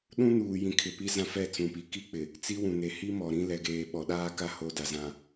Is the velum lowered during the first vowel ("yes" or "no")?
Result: yes